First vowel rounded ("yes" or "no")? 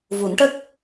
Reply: yes